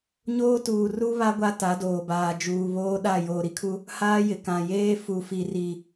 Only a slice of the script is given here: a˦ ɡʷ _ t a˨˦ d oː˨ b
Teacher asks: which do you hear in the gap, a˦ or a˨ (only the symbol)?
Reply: a˦